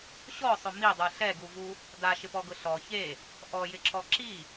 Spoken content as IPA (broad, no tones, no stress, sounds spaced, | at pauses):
ɕ ɔ sˤ ʊ m i dˤ u ɬ ɛ ɡ u v u | d a ʃ ɪ p ɔ ɡ ʊ ɬ ɔ ç e | ʔ ɔ j ɪ ǁ ɔ ǁ i